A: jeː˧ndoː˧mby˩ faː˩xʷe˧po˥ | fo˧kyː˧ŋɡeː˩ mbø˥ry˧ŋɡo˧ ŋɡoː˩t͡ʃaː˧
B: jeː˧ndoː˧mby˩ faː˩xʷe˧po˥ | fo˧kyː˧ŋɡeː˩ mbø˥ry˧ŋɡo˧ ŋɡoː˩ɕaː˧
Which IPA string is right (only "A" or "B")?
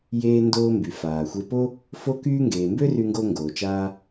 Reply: A